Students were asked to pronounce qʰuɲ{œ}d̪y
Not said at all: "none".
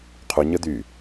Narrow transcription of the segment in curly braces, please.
ə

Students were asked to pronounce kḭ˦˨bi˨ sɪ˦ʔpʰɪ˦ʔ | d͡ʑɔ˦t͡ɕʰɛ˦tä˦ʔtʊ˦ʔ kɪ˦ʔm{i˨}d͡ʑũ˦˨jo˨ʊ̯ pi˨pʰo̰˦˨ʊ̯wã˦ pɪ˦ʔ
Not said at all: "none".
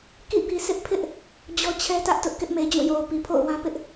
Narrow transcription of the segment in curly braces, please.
e˨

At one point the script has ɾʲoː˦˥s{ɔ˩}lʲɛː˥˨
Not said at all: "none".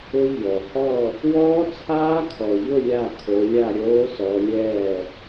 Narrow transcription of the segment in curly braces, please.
ɔ˨˦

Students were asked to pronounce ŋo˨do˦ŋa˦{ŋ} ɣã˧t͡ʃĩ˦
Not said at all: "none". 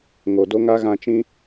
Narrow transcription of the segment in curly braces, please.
none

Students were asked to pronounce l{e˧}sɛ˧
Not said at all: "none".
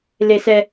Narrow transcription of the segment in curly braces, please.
e˧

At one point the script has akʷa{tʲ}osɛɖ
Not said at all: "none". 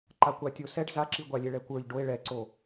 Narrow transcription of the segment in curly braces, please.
tʲ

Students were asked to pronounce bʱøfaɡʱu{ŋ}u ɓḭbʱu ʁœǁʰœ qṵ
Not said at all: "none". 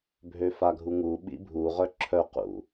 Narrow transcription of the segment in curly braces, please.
ŋ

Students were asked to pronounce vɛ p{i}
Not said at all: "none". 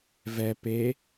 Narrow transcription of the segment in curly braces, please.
e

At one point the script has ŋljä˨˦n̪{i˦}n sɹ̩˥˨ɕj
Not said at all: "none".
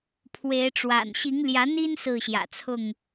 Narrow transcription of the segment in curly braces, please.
i˦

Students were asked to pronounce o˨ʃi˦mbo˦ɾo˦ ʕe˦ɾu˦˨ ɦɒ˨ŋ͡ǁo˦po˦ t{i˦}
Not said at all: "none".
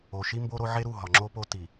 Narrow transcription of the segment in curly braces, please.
i˨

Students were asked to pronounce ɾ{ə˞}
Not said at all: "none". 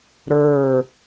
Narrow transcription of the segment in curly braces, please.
ə˞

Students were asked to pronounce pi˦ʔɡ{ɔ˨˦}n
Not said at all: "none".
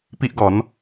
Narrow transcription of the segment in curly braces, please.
ɔ˨˦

